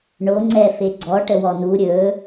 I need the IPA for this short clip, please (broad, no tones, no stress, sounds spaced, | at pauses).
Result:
ɳ o ŋ͡ǀ ɛ f e ɡ͡ǀ ɔ ʈ ə w ɔ n u ɾʲ ɵ